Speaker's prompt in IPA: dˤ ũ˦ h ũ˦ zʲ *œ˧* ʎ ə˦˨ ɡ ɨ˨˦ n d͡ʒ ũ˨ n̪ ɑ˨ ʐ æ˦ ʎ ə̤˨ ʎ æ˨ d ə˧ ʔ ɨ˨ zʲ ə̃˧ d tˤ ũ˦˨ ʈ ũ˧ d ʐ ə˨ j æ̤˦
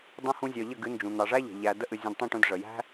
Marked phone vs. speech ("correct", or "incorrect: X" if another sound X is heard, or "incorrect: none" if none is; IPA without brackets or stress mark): correct